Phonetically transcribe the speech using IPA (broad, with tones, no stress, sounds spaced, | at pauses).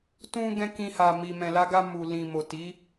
t ũ˧ ɡ ɛ̃˦ k ĩ˧ h a˨ m i˨ m ɛ̃˨ l a˧ ɡ a˧ m u˨ l ĩ˨ m o˨ t i˨˦